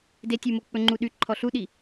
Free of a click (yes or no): no